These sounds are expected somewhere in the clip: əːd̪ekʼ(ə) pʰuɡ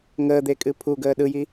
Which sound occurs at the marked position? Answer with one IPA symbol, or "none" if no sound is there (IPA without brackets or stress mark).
ɨ